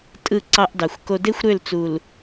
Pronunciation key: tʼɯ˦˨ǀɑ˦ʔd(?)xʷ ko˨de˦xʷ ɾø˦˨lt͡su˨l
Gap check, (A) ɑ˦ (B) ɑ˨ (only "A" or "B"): B